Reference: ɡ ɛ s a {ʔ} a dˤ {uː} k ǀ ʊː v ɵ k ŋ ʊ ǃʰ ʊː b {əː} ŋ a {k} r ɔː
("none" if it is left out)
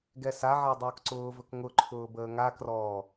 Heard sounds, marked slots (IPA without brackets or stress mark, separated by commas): ʕ, ʊː, əː, k